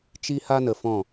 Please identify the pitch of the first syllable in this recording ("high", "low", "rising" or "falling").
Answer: high